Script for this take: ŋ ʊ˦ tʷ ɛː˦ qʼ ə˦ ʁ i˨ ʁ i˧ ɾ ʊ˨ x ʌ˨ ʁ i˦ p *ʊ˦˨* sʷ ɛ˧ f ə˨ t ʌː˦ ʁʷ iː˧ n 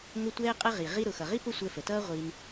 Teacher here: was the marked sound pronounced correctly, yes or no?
no